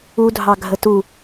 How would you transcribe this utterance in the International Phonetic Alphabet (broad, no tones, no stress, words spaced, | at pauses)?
udʱɑ ɡʱətu